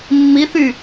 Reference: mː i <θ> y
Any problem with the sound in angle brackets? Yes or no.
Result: no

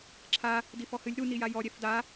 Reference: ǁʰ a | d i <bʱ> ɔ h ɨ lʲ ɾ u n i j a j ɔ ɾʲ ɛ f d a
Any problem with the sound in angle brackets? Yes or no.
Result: yes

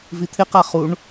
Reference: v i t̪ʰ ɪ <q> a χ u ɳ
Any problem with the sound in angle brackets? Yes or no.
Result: no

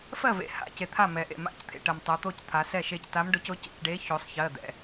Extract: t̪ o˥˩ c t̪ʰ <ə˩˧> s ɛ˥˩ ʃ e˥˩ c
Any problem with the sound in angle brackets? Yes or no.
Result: yes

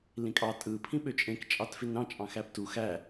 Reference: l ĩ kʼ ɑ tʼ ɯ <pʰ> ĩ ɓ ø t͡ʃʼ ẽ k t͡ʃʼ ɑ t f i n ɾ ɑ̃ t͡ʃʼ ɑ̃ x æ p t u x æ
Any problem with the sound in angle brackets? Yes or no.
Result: no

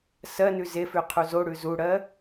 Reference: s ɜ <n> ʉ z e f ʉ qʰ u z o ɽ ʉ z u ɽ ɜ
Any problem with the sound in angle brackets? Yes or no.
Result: no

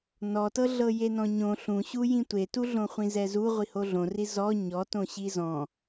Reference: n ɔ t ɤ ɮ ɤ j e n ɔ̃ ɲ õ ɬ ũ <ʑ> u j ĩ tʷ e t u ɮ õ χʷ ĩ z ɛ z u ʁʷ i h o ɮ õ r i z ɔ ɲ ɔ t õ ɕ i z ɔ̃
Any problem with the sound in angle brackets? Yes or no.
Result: yes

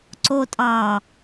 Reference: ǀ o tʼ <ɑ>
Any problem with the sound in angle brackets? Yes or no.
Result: no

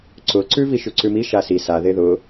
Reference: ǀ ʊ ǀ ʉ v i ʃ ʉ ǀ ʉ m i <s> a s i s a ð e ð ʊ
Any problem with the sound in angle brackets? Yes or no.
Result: yes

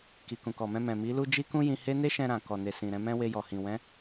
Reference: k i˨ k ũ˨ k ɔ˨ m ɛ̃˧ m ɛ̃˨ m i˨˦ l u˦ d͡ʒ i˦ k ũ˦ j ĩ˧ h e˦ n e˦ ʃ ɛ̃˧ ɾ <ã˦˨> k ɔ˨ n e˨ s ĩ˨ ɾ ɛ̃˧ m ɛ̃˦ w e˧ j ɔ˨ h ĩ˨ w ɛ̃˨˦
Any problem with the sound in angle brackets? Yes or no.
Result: yes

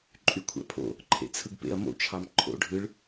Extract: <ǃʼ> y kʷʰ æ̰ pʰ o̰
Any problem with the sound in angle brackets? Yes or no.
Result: no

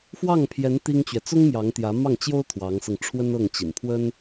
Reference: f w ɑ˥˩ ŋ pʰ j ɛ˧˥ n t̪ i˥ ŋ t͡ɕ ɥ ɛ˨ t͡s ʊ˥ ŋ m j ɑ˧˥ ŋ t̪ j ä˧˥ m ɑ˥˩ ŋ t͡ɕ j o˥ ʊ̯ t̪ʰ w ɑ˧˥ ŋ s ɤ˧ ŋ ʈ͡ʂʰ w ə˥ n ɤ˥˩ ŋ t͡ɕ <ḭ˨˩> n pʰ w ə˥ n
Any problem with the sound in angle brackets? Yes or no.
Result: no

